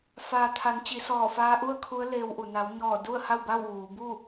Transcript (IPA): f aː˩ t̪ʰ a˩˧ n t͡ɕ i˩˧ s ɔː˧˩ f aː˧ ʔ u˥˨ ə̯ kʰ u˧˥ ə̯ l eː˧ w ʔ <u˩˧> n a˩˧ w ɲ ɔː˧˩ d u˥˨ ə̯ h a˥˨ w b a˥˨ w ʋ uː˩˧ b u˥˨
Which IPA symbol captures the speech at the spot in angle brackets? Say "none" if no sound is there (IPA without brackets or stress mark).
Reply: u˩